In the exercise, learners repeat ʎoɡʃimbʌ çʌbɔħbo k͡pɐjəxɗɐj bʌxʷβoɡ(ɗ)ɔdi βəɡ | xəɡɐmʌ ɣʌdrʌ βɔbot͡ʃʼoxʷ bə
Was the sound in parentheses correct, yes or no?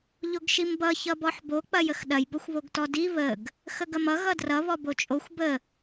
no